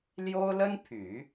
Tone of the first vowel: high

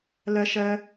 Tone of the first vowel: high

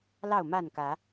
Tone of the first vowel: falling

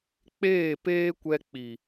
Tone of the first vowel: falling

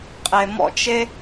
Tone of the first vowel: low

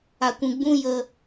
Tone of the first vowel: low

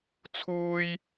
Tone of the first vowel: high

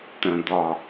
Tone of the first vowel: low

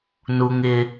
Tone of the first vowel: low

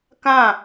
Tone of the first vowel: falling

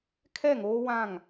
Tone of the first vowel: falling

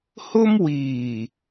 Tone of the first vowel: high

